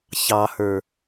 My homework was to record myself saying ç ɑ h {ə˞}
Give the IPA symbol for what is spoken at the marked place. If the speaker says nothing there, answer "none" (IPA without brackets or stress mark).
ə˞